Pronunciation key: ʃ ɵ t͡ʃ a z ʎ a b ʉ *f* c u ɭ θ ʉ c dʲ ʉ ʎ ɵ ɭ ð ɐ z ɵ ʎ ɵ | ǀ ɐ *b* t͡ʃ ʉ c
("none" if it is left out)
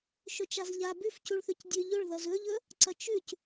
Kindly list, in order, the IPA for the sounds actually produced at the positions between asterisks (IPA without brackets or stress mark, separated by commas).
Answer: f, none